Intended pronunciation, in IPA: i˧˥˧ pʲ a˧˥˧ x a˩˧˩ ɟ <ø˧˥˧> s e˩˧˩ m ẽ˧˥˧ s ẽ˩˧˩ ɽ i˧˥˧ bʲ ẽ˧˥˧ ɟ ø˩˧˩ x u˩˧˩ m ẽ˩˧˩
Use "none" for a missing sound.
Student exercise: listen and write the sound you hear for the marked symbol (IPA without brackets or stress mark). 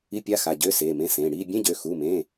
ø˧˥˧